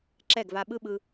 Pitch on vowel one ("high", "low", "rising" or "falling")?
falling